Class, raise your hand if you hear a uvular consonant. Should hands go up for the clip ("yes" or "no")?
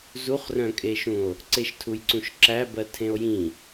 yes